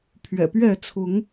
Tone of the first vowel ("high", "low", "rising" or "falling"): low